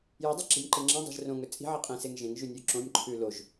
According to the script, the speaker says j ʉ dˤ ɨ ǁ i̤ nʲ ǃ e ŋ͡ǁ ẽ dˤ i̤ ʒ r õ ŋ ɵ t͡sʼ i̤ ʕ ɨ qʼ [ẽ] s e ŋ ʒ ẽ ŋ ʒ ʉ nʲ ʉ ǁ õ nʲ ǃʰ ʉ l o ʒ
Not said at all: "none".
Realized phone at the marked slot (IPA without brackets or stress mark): ĩ